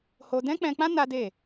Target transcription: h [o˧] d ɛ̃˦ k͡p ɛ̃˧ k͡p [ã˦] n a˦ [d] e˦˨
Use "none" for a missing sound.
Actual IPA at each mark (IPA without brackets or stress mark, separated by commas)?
o˧, ã˦, d